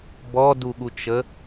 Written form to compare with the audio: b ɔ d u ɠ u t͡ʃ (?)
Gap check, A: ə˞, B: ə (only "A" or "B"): B